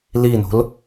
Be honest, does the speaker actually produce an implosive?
no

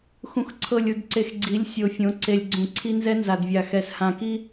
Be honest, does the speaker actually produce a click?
yes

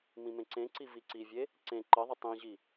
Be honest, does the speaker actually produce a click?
yes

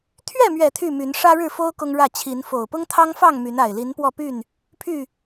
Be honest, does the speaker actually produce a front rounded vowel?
yes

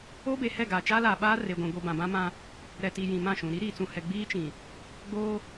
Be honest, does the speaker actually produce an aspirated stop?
no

